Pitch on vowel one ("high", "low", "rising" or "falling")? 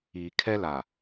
low